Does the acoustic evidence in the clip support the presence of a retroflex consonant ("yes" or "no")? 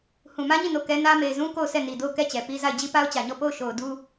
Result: no